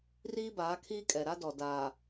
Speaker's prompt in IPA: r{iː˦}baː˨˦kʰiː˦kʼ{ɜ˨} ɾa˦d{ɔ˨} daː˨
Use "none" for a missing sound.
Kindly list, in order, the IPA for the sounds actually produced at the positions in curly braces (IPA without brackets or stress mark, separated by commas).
iː˦, ɛ˨, ɔ˨